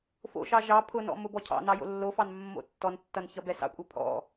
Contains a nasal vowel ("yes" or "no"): no